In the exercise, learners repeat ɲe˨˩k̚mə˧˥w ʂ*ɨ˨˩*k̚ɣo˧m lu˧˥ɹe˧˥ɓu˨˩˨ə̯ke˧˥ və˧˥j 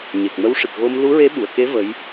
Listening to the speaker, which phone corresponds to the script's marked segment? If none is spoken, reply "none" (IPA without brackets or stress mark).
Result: ɨ˨˩